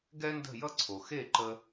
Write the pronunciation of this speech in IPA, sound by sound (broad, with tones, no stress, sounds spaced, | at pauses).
ɡ ɛ˥ n d ə̤˥˩ j ʌ˥ ǀʰ o˩ x e˥˩ ǃ ə˧